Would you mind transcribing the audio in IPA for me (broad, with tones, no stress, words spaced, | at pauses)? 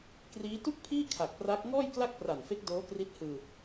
kriː˦˥ tu˥˩k̚pʰiː˥˩ kʰa˨˩k̚pra˦˥k̚ ŋɔː˥˩jkla˥˩k̚pra˨˩nfe˦˥k̚ doː˦˥kri˦˥t̚hɯː˧